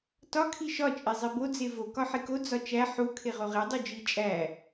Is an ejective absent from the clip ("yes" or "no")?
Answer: no